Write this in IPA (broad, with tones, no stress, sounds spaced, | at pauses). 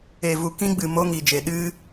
e˨ v u˨ k ĩ˧ ɡ͡b ɨ˨ m o˧ ŋ i˨ d͡ʒ e˨ ɗ ɨ˦